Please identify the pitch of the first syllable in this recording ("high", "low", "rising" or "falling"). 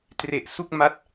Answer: low